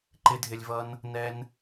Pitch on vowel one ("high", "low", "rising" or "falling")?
high